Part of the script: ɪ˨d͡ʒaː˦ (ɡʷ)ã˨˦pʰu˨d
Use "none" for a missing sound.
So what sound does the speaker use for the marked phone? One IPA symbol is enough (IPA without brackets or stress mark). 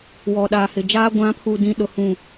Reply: ɡʷ